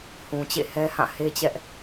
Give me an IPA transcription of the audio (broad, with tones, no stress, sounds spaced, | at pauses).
h ũ˨ t͡ɕ ḛ˦˨ h ɛ˦ h ã˦˨ h e˦ t͡ɕ ɛ˦ ʔ